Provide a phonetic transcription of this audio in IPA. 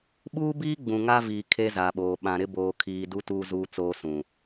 ɓ uː˦ b iː˦ ɡ͡b ũ˨ ŋ a˦ v iː˨ kʰ e˦ z a˨ ɓ oː˨ ɓ ã˨ ɾ ɪ˦ b oː˨ kʰ iː˨ d u˦ t uː˦ z uː˦ t͡s oː˦ s ũ˨

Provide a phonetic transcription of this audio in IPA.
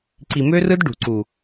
ǀ i˨ m ø˦ r ɯ˦ d ɖ ṳ˨ ǀ u˨

